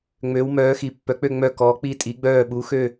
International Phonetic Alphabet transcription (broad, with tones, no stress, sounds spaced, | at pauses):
ŋ͡m ø˩˧ w m œː˩˧ x i˩˧ pː œ˩˧ k͡p ø˧˩ ŋ͡m œ˧˩ k ɔː˩˧ k͡p i˧˩ tʼ i˩˧ ɡ͡b œː˧˩ ɓ u˩˧ x ø˧˩